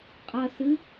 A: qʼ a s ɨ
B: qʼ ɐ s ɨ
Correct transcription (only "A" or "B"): B